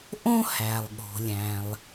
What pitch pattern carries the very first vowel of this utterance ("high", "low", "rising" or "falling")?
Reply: high